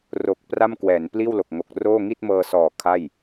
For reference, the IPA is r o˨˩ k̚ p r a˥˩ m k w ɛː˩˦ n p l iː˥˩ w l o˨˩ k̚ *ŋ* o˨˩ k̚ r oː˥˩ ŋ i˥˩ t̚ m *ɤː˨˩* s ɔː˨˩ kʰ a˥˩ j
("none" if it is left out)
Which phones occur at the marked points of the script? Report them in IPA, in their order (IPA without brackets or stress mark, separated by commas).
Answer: ŋ, ɤː˧